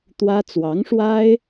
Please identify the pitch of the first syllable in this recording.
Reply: high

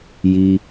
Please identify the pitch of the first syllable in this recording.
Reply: low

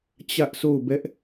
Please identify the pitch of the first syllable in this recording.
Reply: high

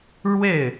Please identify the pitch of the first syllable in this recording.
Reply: falling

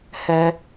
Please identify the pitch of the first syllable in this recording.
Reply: high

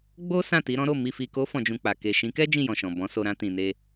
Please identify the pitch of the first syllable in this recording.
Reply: high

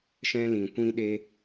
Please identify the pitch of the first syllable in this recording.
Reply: high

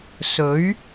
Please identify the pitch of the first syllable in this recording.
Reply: rising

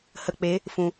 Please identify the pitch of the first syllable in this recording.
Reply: low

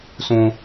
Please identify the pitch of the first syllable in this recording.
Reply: low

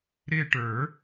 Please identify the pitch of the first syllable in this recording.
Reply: falling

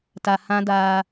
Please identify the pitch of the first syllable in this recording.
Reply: low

